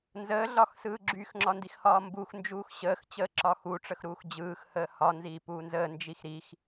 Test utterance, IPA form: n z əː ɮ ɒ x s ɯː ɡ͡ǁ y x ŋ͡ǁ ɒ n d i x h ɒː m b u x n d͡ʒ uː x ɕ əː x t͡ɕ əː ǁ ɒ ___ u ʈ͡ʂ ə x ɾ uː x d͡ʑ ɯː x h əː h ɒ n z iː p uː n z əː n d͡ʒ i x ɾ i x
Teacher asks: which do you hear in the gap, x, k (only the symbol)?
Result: x